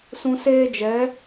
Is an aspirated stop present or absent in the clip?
absent